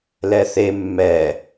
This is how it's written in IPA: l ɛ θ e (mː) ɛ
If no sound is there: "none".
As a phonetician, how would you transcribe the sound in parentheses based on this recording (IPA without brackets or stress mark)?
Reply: mː